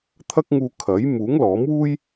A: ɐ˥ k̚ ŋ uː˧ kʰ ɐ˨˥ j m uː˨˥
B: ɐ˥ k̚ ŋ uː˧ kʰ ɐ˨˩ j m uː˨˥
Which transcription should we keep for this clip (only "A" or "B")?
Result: A